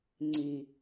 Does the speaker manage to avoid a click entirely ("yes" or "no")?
no